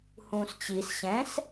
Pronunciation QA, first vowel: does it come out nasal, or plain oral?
nasal